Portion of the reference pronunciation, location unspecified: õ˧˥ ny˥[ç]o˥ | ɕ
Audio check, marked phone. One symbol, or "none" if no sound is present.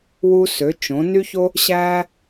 ç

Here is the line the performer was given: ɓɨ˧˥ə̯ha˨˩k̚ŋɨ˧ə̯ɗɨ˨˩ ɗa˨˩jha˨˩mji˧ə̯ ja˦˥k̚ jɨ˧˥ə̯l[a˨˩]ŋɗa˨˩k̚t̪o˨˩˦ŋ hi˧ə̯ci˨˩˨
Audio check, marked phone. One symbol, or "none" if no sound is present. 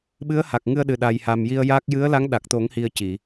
a˧˥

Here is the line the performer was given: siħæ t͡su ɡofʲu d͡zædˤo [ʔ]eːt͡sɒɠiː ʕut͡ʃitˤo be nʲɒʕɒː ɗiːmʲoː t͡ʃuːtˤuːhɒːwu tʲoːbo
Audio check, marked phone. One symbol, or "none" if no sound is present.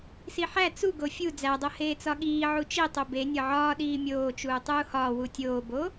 h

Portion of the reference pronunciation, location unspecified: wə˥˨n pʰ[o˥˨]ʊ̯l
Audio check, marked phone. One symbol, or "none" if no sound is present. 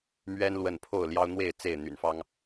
o˥˨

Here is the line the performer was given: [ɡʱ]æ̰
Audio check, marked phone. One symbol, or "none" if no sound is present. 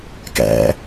k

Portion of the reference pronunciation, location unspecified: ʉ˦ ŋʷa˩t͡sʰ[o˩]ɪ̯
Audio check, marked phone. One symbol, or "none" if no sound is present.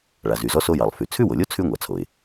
o˩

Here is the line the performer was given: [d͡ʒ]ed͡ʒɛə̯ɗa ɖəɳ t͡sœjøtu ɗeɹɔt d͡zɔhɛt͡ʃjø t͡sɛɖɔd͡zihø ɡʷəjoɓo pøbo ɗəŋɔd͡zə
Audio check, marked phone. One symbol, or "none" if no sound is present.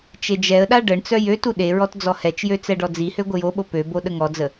t͡ʃ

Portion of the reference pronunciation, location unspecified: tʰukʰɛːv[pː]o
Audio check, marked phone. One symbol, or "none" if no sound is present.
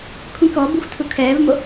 m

